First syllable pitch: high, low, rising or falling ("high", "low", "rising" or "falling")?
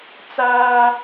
high